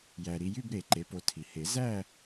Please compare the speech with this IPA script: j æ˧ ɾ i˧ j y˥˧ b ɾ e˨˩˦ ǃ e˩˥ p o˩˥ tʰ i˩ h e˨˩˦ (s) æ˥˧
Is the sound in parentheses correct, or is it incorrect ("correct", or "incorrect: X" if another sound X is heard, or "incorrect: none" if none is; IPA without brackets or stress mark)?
incorrect: z